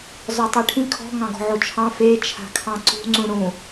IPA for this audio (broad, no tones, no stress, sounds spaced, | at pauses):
z ɔ tˤ e ʈʰ ĩ kʰ ɔ̤ ŋ ɑ̃ ɡ ɔ̤ ʕ o t͡ʃʰ ɑ̃ f e t͡ʃʰ a̤ kʰ ɑ̃ ǀ ṳ ŋ͡ǀ ũ ɽ ũ